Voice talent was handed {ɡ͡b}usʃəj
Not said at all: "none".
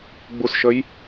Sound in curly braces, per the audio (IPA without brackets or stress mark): ɡ͡b